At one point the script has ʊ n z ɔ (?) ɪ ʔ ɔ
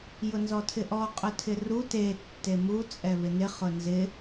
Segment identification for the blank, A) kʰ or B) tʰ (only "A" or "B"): B